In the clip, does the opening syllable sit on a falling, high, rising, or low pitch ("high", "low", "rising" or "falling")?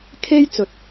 high